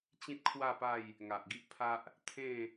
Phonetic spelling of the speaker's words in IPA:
t͡ɕ ĩ˦ t̚ kʰ w a˥˧ p a˥˧ j | ŋ a˨ ʔ ɡ i˦ ʔ pʰ a˦ ʔ | t̪ʰ ẽ˥˧

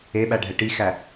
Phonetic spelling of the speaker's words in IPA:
e ɓ æ ɖʱ ɛ ʈ i x æ

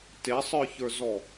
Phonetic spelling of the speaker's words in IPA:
t e sˤ ə˞ ç ə˞ z ɔ

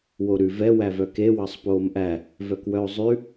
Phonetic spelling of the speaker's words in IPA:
w o ɾ ʉ v ɛ w æ v œ k e w ɑ sˤ p oː m ʔ æ | v œ k w œ o̯ zˤ ʉ

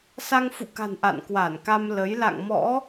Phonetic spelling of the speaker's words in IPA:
s a˧ ŋ f ṵ˧˨ k a̤˨˩ n ʔ a̰˧˨ n k w a˧˩ n k a˧ m l ə˨˦ j l a̰˧˨ ŋ m ɔ̰˧˥

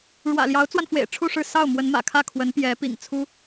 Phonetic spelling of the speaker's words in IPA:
ɻ w ä̰˨˩ l j ɑ˧˥ ʊ̯ t͡s w a˧ n f w ḛ˨˩ ɪ̯ ʈ͡ʂʰ u˥˧ ʂ ɻ̩˥˧ s ɑ˥˩ ʊ̯ m w ə˧˥ n m ä̰˨˩ kʰ ä˥˩ kʰ w ə˧˥ n p j ɛ˧˥ p ḭ˨˩ ŋ t͡sʰ u˥

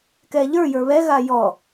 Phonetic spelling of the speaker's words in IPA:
k ɛ ʎ ə˞ j ə˞ β ɛ ɣ a j ɔ

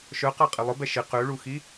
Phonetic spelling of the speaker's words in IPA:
ʃ œ q a qʼ ɪ lˠ ʊ b ɛ ʃ ɪ q ø ɭ u x i

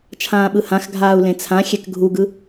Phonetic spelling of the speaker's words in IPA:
t͡ʃʰ ãː ɓ ɯ h ã x ɡʱ aː u̯ l ẽ t͡sʰ ã xʲ ɛ k ɡʱ u ɡ ɯ

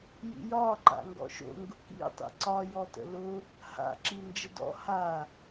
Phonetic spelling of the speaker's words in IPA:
j ḭ j ɒ ǃ a̰ ŋ ɡ ɔ̰ ʃ o̰ ŋ ɡ ʊ k ḭ tˤ ḭ ǀ ɒ j ɔ t ə̰ l ʊ | h a̰ ǁ i n d͡ʒ ə d ɔ̰ h a

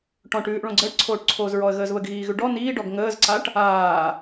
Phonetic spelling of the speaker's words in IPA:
ʈ ɔ̃ ʈ ʉː ʔ ɭ õ ɡ͡ǀ əː ʈ ǀʰ oː ʈ ǀʰ oː z ɹ ɔ ə̯ ɣ əː z β ə ɡ ɣ iː ɣ ʉ ɖ ɔ n iː ɖ ɔ ɡ ŋ əː z ǀ a ʈ | aː

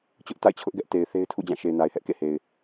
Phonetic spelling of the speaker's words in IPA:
t͡ɕ ʊ˦ ʔ t a̰˦˨ ɪ̯ t͡ɕʰ ʊ˦ ʔ ɡ ɛ˦ ʔ t e˨ ɪ̯ θ e˦ ɪ̯ tʰ ṵ˦˨ d͡ʑ ã˦˨ ʃ e˨ ɪ̯ n a˨ ɪ̯ h ɛ˦ ʔ k ḛ˦˨ h e˨ ɪ̯

